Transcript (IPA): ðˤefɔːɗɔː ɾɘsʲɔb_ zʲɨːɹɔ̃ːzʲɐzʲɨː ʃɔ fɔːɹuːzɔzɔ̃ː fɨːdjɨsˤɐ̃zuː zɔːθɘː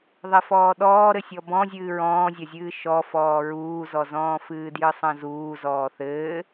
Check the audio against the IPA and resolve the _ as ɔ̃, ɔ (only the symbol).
ɔ̃